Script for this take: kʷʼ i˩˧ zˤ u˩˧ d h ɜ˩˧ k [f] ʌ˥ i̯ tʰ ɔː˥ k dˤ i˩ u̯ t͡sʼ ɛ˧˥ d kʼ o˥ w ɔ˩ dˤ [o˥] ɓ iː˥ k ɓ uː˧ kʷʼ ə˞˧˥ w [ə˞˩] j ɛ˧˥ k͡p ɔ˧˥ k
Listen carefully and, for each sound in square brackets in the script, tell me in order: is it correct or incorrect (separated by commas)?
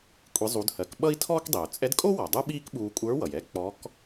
incorrect, incorrect, incorrect